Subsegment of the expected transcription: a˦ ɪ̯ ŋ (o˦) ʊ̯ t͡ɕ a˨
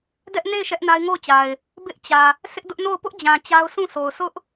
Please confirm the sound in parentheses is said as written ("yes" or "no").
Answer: no